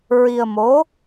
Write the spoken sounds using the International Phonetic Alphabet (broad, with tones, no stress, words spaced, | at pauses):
ɹi˧ə̯mo˧˥